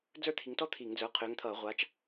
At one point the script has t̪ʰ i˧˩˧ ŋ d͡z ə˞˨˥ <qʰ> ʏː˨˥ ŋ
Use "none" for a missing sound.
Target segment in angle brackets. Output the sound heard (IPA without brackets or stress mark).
qʰ